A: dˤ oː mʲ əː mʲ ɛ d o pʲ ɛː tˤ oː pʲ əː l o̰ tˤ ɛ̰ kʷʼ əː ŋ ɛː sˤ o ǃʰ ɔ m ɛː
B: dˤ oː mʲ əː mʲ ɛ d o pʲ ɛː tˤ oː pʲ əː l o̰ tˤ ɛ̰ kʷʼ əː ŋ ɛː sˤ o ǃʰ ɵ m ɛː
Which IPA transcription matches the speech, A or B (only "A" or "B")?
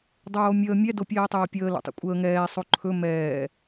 B